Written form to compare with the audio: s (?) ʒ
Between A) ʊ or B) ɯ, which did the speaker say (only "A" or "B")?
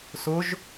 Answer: A